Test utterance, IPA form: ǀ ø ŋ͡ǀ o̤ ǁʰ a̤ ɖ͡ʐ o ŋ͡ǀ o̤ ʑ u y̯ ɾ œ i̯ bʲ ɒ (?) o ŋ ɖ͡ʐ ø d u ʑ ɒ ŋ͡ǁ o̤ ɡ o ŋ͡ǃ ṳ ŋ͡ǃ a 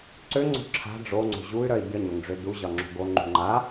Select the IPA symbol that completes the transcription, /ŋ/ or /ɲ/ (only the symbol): ɲ